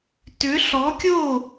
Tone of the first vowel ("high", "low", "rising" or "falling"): rising